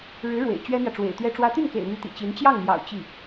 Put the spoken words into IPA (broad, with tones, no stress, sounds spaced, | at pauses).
ɻ ɻ̩˧˥ ɻ w ḛ˨˩ ɪ̯ t͡ɕ ɥ ɛ˥ n̪ j ä˨ ʈ͡ʂ w ḛ˨˩ ɪ̯ t̪ ɥ ɛ˥ ʈ͡ʂ w ä˥ t̪ y˥˩ n k ḛ˨˩ ɪ̯ n̪ y˧˥ t̪ ḭ˨˩ t͡ɕ i˧˥ n t͡ɕ j ɑ˥˩ ŋ m j ɑ̰˨˩ ʊ̯ t͡ɕ i˥˩